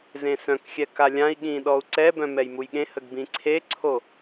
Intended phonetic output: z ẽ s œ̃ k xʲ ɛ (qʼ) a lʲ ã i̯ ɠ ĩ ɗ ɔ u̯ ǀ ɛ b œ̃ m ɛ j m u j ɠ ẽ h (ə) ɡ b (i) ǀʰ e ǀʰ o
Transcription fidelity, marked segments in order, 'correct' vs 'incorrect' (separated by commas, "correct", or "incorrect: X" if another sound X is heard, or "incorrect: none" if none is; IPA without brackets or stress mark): incorrect: k, correct, incorrect: ĩ